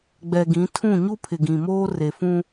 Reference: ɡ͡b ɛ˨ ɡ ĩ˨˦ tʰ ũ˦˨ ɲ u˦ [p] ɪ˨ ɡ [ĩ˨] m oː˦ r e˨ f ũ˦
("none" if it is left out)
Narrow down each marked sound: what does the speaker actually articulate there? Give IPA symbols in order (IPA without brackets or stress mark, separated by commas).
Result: pʰ, ĩ˨